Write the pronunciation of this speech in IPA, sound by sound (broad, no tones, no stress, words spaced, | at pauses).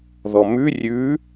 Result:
ðɔmʉ rʲʉ